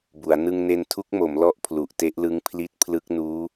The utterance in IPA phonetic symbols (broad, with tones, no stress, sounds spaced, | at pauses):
b u˩˦ a̯ n ɯ˧ ŋ n e˧ n tʰ u˦˥ k̚ m o˩˦ m l ɔ˥˩ ʔ pʰ l u˨˩ ʔ t e˦˥ ʔ l ɯ˦˥ ŋ pʰ l i˦˥ t̚ pʰ l ɯ˦˥ k̚ n uː˦˥